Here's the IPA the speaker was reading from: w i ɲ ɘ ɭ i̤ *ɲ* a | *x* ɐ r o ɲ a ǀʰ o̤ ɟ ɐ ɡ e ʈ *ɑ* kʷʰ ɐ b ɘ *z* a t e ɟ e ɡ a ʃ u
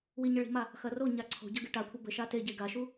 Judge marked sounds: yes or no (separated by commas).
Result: no, yes, no, no